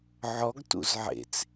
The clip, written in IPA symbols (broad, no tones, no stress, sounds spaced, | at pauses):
ʕ ɔ ɡ t ṵ z ʕ ḛ t͡s